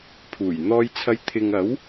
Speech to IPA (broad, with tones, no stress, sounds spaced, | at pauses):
pʰ uː˨˩ j n̪ ɔː˧ j t͡sʰ ɐ˧ j t̪ʰ ɪ˨ ŋ ɐ˨˥ w